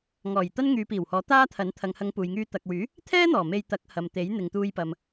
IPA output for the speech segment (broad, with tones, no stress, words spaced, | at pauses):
ŋɔː˨˩j t̪ɐ˥nŋyː˨˧piː˨˩whɔː˨˥ t̪aː˥t̪ʰɐ˨˥n t̪ʰɐ˨ŋhɐ˨˧ŋ puː˨jŋyː˧ t̪ɐ˨k̚wyː˨˥ | t̪ʰɛː˥ n̪ɔː˨˩me˧jt̪ɐ˨˥k̚hɐ˨m t̪e˨˥jn̪ɪ˨ŋ t̪uː˧jpɐ˨m